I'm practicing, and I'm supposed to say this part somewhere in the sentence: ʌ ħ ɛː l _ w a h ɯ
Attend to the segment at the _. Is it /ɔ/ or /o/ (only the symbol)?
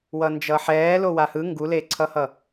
o